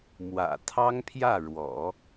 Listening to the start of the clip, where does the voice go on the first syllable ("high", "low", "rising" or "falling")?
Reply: low